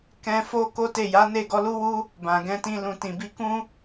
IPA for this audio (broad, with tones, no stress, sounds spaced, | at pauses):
k ɛ̃˧ f o˦ k o˦ t e˦˨ j a˨˦ n e˦˨ ɡ ɔ˨˦ l u˦ w u˦ | b ã˨ ɡ ɛ̃˧ t ĩ˧ l ũ˨ t ĩ˨ b i˧ k ũ˦